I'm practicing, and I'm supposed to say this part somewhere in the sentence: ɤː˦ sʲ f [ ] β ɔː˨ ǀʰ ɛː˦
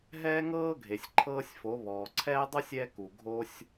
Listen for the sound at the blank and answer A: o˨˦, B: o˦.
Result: A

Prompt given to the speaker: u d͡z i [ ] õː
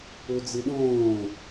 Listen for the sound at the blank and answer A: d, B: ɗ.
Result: B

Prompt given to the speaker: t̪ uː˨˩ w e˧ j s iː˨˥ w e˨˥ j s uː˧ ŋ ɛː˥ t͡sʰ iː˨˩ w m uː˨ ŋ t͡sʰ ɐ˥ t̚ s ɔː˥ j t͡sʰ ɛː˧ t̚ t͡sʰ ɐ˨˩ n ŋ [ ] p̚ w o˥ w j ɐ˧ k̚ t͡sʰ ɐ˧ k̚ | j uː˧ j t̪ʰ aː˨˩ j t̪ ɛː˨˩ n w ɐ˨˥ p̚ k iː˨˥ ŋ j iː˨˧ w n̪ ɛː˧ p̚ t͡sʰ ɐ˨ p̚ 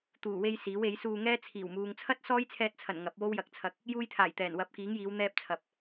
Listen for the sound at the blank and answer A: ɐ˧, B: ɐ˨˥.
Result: B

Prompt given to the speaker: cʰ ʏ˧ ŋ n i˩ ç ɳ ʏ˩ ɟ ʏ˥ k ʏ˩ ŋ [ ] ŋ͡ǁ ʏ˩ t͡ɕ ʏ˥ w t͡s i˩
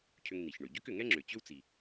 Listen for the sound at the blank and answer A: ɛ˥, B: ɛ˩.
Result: A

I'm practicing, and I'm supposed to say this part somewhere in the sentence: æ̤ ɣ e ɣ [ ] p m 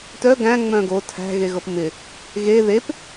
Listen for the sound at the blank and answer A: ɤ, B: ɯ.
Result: A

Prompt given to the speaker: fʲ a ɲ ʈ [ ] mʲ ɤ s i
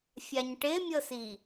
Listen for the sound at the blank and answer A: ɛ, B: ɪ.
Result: B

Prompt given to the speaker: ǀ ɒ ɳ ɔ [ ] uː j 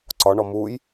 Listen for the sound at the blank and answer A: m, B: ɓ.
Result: A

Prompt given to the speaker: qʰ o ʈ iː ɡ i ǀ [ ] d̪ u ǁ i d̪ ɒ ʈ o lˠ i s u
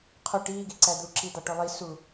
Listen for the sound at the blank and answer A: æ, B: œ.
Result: A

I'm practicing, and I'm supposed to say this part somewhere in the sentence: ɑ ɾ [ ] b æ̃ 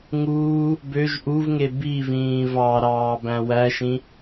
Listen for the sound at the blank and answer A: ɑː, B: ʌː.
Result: A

